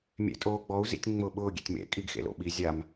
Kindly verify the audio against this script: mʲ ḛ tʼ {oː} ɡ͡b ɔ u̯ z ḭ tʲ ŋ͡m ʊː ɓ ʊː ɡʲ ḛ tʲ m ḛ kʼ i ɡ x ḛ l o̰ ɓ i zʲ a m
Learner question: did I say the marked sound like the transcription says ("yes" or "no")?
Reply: yes